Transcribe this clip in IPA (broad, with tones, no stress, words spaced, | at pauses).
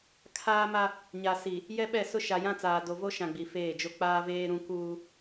kʰaː˦ma˦ | ɲa˨si˨ | jɛ˦ɓɛ˦˨sʊ˦ ʃa˨jã˦t͡saː˨ do˨vo˦ʃã˨ ɡ͡bi˨feː˦˨d͡ʒo˦ k͡paː˦veː˦ ɾũ˦ kuː˦